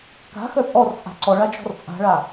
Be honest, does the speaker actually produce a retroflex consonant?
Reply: yes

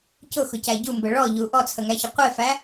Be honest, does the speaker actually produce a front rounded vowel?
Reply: no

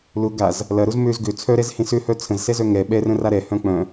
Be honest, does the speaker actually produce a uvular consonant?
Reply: no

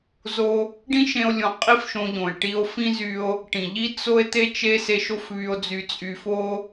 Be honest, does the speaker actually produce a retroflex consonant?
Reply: yes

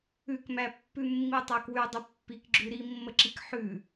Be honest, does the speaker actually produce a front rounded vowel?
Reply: yes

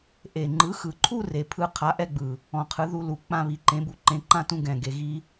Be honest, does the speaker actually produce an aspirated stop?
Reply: yes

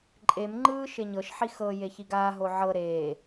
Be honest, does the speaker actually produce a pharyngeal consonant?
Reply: yes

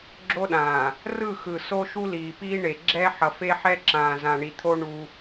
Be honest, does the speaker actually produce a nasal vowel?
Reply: yes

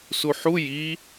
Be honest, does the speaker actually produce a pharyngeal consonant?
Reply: yes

